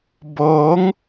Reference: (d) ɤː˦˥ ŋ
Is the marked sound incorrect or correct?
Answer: incorrect